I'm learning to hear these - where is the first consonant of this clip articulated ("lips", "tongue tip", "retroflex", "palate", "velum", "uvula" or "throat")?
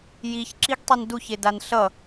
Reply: palate